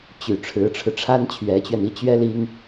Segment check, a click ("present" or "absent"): absent